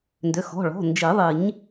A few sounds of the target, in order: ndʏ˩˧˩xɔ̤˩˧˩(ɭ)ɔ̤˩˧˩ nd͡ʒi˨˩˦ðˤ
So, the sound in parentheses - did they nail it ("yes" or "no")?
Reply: yes